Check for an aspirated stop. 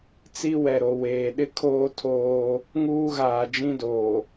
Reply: present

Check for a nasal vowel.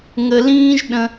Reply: present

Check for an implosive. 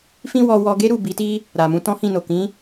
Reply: absent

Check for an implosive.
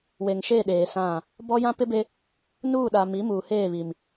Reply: present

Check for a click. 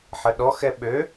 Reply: absent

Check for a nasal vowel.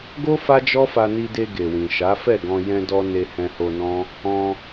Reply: present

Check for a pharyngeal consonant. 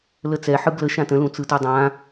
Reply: present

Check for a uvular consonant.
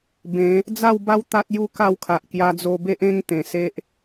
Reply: absent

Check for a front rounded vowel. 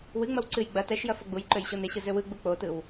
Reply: present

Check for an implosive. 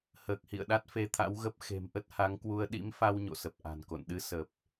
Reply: present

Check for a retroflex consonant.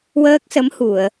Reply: absent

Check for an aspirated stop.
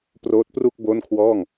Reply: present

